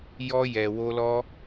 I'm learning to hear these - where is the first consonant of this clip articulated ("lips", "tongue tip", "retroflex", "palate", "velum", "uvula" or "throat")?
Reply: palate